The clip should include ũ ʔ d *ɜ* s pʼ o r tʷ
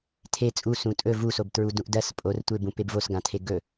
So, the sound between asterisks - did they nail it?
yes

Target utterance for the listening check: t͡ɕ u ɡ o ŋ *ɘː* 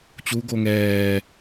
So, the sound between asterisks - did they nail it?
no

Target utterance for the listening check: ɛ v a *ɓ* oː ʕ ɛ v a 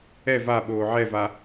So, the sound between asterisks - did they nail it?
yes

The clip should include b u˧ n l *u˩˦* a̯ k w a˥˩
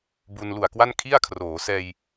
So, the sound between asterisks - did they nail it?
no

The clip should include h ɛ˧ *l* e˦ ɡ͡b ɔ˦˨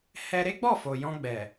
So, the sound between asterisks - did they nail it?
no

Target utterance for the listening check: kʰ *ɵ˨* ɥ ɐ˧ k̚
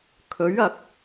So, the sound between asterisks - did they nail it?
no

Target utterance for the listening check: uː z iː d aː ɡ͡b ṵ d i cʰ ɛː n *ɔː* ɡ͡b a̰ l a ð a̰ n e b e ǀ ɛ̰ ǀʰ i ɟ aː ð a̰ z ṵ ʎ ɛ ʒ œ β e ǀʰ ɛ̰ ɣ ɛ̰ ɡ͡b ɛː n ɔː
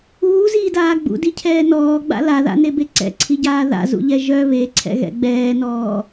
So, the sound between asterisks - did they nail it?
yes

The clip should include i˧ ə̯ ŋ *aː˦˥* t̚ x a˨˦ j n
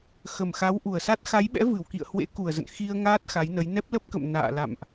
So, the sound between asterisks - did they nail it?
yes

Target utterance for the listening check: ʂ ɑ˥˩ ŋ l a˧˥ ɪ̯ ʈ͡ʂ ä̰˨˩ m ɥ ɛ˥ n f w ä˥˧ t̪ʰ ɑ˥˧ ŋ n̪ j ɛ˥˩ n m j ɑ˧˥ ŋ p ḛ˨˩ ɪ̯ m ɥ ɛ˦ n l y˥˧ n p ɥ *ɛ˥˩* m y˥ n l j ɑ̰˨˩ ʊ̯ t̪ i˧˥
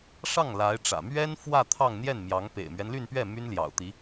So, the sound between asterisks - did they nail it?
yes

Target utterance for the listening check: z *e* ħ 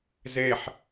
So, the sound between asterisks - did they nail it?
yes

